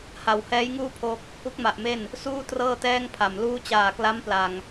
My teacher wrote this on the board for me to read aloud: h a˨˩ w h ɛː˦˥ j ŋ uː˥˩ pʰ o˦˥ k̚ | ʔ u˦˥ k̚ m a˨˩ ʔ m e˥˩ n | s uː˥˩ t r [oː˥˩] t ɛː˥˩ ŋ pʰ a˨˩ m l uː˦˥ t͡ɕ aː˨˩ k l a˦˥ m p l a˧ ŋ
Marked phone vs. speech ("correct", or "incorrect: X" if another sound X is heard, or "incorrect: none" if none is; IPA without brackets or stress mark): incorrect: ɤː˥˩